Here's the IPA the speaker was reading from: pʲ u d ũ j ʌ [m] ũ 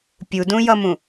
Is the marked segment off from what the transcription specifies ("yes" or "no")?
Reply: no